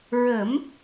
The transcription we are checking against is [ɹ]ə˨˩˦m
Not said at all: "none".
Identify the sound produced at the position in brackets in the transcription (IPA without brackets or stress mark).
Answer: ɹ